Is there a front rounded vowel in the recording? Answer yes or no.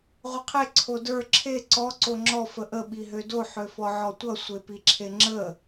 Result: yes